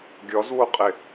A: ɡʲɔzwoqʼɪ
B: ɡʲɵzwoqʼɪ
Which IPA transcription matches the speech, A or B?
A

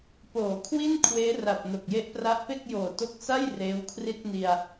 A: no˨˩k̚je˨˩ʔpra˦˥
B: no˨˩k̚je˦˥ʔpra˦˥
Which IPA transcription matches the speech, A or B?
B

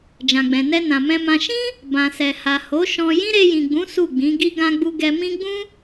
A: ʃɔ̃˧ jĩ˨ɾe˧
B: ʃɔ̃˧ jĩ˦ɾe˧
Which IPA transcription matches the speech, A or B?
B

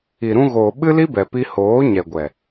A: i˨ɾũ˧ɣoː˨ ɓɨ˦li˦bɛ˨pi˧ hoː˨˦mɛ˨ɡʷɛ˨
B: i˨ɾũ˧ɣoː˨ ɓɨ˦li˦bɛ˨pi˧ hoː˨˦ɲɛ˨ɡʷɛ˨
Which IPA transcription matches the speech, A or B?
B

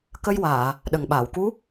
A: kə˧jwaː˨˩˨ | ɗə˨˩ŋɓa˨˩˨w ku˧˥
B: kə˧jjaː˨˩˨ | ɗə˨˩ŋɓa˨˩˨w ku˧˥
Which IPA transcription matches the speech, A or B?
A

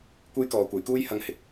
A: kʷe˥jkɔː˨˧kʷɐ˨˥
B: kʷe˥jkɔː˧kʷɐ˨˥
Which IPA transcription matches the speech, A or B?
A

